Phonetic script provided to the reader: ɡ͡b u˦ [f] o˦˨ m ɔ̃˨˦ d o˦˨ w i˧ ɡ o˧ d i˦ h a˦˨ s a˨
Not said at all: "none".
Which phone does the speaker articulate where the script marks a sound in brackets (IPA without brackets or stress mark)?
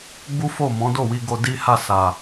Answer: f